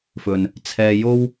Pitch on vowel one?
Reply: low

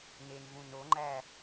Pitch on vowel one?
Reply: low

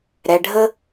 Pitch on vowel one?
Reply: low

